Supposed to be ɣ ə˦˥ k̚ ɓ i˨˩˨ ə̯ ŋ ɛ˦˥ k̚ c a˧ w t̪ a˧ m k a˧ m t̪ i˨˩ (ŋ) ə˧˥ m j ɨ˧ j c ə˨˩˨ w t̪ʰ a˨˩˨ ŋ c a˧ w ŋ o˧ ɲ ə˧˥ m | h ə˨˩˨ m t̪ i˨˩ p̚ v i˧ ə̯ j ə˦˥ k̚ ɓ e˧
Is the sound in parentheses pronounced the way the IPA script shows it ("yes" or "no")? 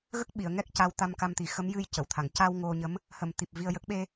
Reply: no